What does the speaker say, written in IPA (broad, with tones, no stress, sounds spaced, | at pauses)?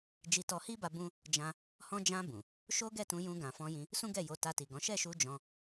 d͡ʒ i˧ t ɔ˧ h i˦ b a˧ b ũ˦ | d͡ʒ ã˦ | h ɔ̃˧ d͡ʒ ã˧ b ũ˨ | ʃ o˦ ɡ ɛ˦˨ t ũ˧ j ũ˧ ɡ ã˨ f ɔ̃˧ j ĩ˧ | s ũ˦ ɡ ɛ˦˨ j o˧ t a˧ t i˨ ɡ ɔ̃˨˦ ʃ ɛ˦˨ ʃ u˧ d͡ʒ ɔ̃˧